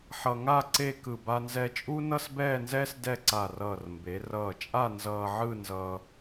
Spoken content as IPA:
ħ ʌ˧ ŋ a˥˧ ǀ e˥˧ k ɯ˧˩ b a˧ n z ɛ˧ t͡ʃʼ uː˥ n ʌ˥˧ s b ɛː˥˧ n z ɛː˥ s d ɛ˥˧ ǀ a˧˩ r ʌː˧˩ r m b e˩˧ r ʌː˧˩ t͡ʃʼ a˥˧ n z ʌː˧ ʕ ɯ˥˧ n z ʌː˧

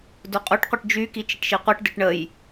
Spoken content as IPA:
d o qʼ u ʈ qʷ ɪ ʈ d͡ʒ y k i t͡ʃ ɪ ʈ ʃ i qʷ i ʈ d ɪ ʈ ɳ ə j

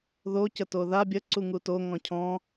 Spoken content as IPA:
ð o c ə t o ð a bʲ ə ǀ u ŋ u t o ŋ ɔ̃ cʰ ɔ̃

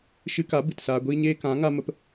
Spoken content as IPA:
ʃ ɨ˧ k a˨˦ b ɨ˨ t s aː˧ ɡʷ iː˦ ɲ eː˦ k ã˨˦ ŋ a˧ m ə˧ p

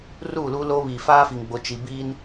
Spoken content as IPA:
r uː˦˨ l uː˦ l oː˦ β iː˨ f aː˦ f i˨ ŋ ɡ͡b o˨ t͡ʃ i˨ b iː˦ n

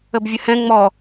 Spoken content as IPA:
ə b vʲ ə h ɛ̃ ŋ͡m ɔ

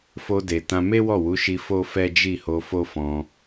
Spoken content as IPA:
f o˧ d e˨ t ã˧ m e˦ w ɔ˦˨ w u˨˦ ʃ i˧ f o˦ f ɛ˦ d͡ʒ i˦˨ h o˧ f o˦ f ɔ̃˧

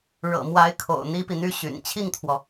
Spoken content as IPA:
ɻ ɤ̰˨˩ m w a˧˥ ɪ̯ kʰ o̰˨˩ ʊ̯ n̪ i˥ p i˨ n̪ y˥ ɕ y̰˨˩ n t͡ɕʰ i˥˩ ŋ t̪ʰ w ɔ˩

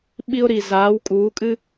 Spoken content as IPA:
ɓ i˧ ʊ̯ ɾ i˩ z aː˩˥ w kʼ uː˩˥ kʼ ɨ˥

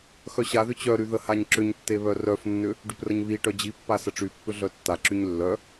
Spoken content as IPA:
x œ ɕ a ð ʏ t͡ɕ œ ɾ y ð ə h a ɲ ǁ ʏ ɲ tː e β œ r œ f nː ʏ | ɖ y p r ə ɲ β i ʈ œ d͡ʑ i pː a s ə ʈ͡ʂ y pː ʏ ɮ œ tː a ǁ y ɲ lː œ

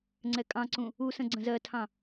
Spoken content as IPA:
ŋ͡ǀ ɛ kʼ ɑ̃ ǀ ũ | u s ə̃ ɡ͡ǀ ə̃ z ɜ tʰ ɑ̃

